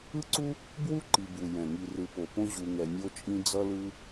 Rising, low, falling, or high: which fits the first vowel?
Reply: high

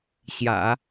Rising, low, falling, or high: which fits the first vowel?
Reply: low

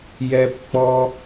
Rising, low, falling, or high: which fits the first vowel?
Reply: high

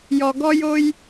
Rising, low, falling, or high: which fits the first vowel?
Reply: low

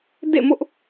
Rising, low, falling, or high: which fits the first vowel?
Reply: falling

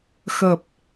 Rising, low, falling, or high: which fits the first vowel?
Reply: low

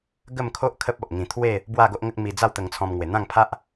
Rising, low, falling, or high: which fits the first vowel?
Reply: falling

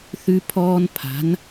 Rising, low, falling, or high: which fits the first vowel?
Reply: high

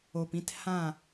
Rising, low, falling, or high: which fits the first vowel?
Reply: low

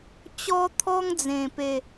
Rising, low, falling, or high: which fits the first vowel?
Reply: high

